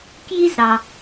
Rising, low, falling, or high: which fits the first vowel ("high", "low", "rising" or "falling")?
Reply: high